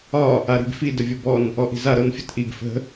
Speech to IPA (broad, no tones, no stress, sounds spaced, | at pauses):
ɒ | a ɾ i̤ b f i d ə vʲ o b ɔ n | ɔ ʔ i̤ z a ɾ ɤ n fʲ ə t ʔ i ɡ f ə̤